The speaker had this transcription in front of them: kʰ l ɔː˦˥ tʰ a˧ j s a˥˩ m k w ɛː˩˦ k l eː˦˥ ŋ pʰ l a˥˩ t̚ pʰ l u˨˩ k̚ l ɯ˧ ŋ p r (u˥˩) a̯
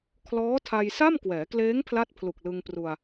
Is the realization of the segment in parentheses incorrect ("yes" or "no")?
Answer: yes